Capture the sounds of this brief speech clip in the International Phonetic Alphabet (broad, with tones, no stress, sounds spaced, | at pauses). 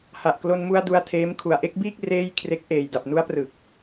h a˨˩ ʔ k l o˧ n m u˧ a̯ d u˧ a̯ tʰ eː˦˥ m kʰ u˨˩ a̯ ʔ e˥˩ k̚ b iː˥˩ k̚ r eː˥˩ j kʰ r e˦˥ k̚ ʔ eː˨˩ j d a˨˩ p̚ n u˦˥ a̯ p r ɯ˨˩ k̚